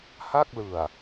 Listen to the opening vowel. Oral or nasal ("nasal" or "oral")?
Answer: oral